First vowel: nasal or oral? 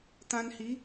nasal